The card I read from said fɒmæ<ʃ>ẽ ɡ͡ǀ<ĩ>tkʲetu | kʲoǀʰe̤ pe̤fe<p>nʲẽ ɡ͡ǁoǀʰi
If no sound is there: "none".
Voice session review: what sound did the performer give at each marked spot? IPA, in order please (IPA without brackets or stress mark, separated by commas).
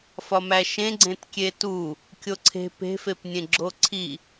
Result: ʃ, ẽ, p